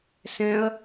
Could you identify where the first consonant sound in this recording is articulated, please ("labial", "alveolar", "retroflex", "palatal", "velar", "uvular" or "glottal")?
alveolar